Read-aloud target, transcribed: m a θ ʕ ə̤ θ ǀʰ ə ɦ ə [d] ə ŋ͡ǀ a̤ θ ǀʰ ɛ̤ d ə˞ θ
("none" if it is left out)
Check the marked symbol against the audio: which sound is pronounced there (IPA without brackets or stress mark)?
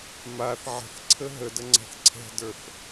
d